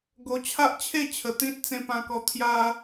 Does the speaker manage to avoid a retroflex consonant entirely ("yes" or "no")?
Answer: yes